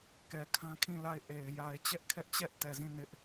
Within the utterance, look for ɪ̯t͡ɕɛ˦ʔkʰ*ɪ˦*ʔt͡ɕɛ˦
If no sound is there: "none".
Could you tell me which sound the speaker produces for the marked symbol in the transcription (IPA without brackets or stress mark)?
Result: ɛ˦